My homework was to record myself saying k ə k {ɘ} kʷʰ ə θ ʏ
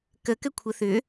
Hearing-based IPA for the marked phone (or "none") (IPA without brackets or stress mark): ɘ